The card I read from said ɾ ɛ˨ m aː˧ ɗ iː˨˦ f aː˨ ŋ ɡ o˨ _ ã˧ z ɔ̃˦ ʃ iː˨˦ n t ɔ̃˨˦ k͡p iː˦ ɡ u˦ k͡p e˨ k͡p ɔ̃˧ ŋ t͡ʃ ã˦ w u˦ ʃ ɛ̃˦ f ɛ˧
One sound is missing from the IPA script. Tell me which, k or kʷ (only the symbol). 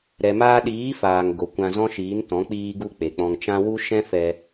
kʷ